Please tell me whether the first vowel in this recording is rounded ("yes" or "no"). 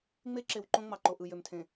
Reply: no